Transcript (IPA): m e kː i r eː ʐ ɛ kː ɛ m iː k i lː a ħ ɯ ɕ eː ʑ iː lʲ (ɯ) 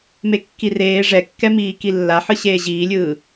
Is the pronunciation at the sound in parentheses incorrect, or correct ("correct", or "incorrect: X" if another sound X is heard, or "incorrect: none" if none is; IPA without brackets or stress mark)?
incorrect: ɯː